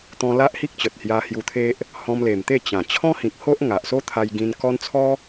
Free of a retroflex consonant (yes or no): yes